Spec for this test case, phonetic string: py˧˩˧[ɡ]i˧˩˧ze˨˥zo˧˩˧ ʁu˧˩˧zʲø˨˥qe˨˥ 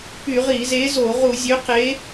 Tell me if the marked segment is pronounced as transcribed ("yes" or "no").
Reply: no